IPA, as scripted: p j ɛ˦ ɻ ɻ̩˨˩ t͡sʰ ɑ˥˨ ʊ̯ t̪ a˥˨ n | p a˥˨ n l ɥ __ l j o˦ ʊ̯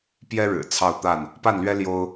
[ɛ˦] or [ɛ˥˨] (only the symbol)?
ɛ˦